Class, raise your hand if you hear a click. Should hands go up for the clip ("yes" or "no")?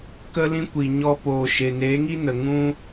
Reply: no